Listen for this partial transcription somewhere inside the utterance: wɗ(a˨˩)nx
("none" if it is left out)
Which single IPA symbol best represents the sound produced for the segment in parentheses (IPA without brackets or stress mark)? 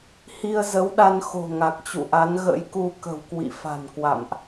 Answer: a˧